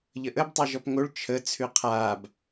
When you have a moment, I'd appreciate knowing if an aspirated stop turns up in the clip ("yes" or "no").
yes